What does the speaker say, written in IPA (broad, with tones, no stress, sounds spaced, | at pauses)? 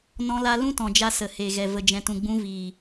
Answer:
n ɔ̃˧ l a˧ l ũ˦ t ɔ̃˨ d͡ʒ a˧ s ə˨ h e˨ ɣ ɛ˨ v ə˨ d͡ʒ ɛ̃˨ t ũ˨ ɡ͡b ũ˧ v iː˨